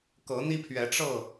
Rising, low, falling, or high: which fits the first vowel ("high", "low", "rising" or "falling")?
rising